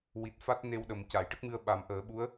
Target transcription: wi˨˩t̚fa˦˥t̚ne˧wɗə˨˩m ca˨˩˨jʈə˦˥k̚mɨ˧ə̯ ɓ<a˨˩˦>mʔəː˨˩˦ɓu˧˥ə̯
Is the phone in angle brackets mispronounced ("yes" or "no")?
no